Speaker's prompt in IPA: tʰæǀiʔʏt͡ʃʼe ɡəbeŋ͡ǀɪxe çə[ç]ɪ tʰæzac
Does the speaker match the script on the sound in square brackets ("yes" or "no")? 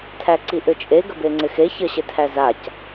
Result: no